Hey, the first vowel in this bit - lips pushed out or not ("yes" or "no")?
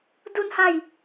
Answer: yes